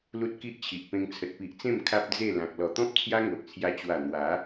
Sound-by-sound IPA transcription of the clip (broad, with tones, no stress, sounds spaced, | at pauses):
l u˦ t̚ k i˦ ʔ t͡ɕʰ i˨ ʔ p ẽ˧ ŋ t͡sʰ ə˨ t̚ p i˨ ʔ t͡s ẽ˥˧ m kʰ a˦ p̚ d͡z e˥˧ l ã˨ k̚ l ɔ˨˩ t̪ ɔ̃˦ p̚ t͡sʰ j a˦ ŋ o˨ ʔ t͡sʰ j a˧ t͡ɕ w a˨˩ n̪ w a˨˦